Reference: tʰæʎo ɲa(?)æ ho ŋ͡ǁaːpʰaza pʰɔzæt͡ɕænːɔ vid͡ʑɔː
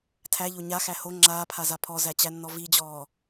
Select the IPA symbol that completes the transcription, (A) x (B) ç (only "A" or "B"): A